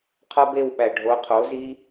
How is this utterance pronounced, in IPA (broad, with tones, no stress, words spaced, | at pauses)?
qʰɒ˦be˦˨wɓæ˨ ɖʱo˨˦qʰo˨˦zi˦